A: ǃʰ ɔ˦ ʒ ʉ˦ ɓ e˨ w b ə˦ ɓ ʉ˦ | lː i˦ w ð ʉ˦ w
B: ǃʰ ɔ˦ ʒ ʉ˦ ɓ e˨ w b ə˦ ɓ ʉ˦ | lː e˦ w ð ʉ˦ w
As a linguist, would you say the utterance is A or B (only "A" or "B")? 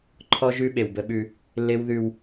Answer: B